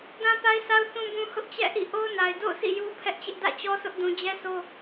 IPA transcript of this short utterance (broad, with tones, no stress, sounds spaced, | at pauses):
d ã˦ p a˦ ɪ̯ s a˦ ʊ̯ θ ũ˦ b ũ˦ h ʊ˦ ʔ t͡ɕ ɛ̰˦˨ ʔ ḭ˦˨ ʔ o˦ ʊ̯ n a˨ ɪ̯ d o̰˦˨ ʊ̯ s ḭ˦˨ j u˦ pʰ ɛ˦ ʔ t͡ɕ ɪ˦ ʔ d ä̰˦˨ t͡ɕ ɔ˦ sʰ ʊ˦ ʔ d ũ˦ d͡ʑ ɛ˦ s o˦